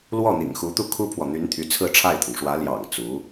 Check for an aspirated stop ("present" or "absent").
present